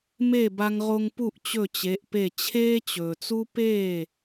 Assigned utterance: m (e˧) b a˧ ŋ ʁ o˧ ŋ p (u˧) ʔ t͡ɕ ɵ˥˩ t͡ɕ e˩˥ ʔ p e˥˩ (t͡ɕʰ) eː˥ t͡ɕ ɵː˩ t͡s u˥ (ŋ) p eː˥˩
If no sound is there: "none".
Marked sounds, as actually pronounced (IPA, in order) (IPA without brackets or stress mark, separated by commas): e˥˩, u˥˩, t͡ɕʰ, none